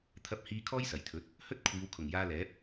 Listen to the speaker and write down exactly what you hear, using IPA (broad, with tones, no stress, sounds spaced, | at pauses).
t̪ʰ ɐ˧ p̚ h iː˧ kʰ ɔː˥ j s ɐ˨˩ j t̪ʰ ɵ˨˥ t̚ | h ɵ˥ t̚ kʷʰ iː˨˧ w kʰ ʊ˨˩ ŋ j aː˧ l ɛː˨˥ p̚